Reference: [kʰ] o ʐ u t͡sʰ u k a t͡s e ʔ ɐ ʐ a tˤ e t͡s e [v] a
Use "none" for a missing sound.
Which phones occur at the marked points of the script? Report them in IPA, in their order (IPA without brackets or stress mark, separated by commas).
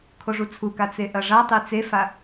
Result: kʰ, f